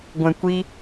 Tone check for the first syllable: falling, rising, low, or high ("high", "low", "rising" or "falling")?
low